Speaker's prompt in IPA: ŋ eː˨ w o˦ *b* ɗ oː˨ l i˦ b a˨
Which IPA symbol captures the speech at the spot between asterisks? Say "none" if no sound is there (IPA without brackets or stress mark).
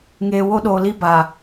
none